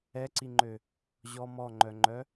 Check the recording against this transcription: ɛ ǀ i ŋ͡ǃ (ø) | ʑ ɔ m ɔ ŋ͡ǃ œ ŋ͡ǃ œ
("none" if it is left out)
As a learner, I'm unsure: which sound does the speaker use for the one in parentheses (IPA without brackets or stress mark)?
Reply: ø